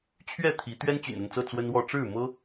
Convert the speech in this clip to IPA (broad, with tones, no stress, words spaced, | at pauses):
t͡ɕʰɥɛ˥˨t̪ʰi˨˦ t̪ɥɛ˦nt͡ɕy̰˨˩nə˥˨nt͡sɤ˥˨ t͡swə˦nwɔ˥˨ ʈ͡ʂɻ̩˥˨mɤ˦